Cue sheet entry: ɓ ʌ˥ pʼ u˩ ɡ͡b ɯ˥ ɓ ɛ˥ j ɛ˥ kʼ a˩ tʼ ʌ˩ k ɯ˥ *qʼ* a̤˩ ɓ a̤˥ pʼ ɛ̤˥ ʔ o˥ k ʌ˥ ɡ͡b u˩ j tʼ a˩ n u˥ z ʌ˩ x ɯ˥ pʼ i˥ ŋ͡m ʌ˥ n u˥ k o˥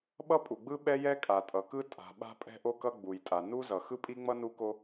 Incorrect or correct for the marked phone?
incorrect: tʼ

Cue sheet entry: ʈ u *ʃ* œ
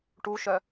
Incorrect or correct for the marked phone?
correct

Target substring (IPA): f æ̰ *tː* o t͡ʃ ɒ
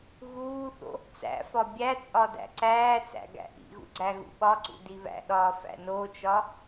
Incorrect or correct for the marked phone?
incorrect: n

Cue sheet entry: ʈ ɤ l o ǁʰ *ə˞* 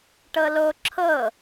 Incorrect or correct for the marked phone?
incorrect: ɤ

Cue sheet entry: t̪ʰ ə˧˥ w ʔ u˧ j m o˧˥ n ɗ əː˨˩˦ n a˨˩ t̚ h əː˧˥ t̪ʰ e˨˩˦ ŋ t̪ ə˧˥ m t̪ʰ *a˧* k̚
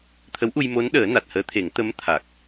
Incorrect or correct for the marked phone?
incorrect: a˨˩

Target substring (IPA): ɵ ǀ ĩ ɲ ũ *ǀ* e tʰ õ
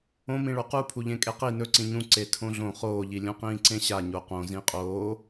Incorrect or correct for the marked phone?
correct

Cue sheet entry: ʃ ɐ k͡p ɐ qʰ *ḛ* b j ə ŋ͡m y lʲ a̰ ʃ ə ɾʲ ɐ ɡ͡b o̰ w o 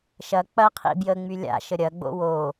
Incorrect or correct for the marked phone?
incorrect: ḭ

